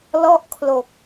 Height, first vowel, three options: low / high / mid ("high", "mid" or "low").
mid